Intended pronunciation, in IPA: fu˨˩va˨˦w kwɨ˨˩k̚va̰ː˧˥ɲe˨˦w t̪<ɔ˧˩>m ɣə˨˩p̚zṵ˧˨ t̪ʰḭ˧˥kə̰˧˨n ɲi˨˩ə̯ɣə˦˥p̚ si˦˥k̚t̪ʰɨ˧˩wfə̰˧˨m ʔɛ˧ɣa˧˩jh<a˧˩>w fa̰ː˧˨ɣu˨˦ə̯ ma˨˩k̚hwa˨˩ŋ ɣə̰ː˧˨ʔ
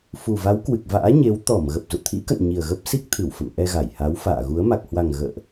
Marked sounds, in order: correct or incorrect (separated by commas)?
correct, incorrect